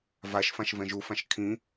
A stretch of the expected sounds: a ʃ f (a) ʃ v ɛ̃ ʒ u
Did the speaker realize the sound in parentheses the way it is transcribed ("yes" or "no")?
no